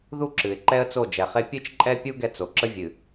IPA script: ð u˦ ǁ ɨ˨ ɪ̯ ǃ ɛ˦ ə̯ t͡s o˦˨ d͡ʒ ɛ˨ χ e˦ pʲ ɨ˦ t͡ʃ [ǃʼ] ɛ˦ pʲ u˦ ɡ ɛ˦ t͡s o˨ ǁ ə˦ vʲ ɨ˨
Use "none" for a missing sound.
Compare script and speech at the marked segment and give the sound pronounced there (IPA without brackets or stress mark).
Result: ǃʼ